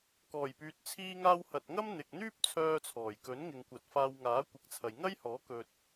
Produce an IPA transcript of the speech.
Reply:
kɔː˨˩jpyː˨t̚ t͡sʰiː˧ŋaː˧w hɐ˨t̚ŋɐ˥m n̪ɪ˨k̚n̪yː˥p̚ t͡sʰœː˧t͡sʰɔː˨˩jkɵ˨˥n ŋɪ˨ŋkʷɐ˨t̚ faː˧wŋaː˨˥kʷɪ˨˥k̚t͡sʰɐ˨j ŋɐ˥jhɔː˨˥ kɵ˧t̚

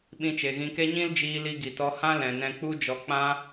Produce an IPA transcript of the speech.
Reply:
ɓĩ˧t͡ʃe˨ɣĩ˧ke˦ ɲĩ˦ld͡ʒiː˧li˧ ɡi˨tɔ˧hã˦ lɛ̃˨nɛ̃˧k͡pu˦d͡ʒɔ˧ k͡pã˦

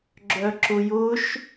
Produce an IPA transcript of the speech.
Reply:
ɡ͡ǁœǁʊjʊʃ

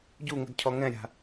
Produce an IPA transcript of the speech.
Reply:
ɟuŋə̤d cʰɔŋɛ̃ɾʲa̤

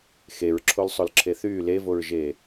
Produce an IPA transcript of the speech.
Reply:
xeɹǁʰolsˤolǁʰe θyː levoɹʒeː

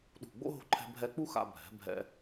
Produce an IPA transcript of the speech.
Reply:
ɗṳ˧˩ɡ͡bo̰˥ ɦo̤˧ǃʰɛ̤˧ bʱɛ˧k͡pu˥xa̰˧ bʱɛ̤˩˧ bʱɛ̰˧

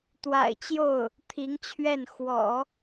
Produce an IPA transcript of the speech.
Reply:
t̪wa̰˨˩ɪ̯t͡ɕjo˥˩ʊ̯ | t̪ʰi˧˥ŋt͡ɕʰɥɛ˥˩n xwɔ̰˨˩˦

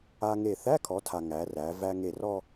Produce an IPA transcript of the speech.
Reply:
a˧ŋe˧˩ θæ˧˥˧kʰɔ˩˧tʰa˩ ŋæ˩˧ræ˩˧ væ˧ ŋe˧˩rɔ˥˧

